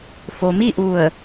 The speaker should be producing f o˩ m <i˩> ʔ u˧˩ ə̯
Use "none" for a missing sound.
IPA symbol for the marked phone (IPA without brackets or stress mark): i˥˨